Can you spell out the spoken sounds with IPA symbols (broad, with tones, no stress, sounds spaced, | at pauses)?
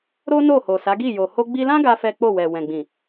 ɾ o˦ n o˦˨ h o˨ s a˨˦ ɡ i˦˨ j o˨ h o˧ ɡ͡b i˧ l ã˦ ɡ a˦ f ɛ˦ k͡p o˦˨ w ɛ˨ w ɛ̃˨ ɡ͡b ĩ˨